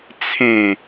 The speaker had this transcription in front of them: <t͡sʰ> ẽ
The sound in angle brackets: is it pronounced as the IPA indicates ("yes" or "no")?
yes